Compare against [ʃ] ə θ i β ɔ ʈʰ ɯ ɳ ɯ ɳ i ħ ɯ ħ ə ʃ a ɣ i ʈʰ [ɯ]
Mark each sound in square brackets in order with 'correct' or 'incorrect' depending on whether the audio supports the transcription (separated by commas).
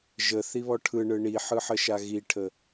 incorrect, incorrect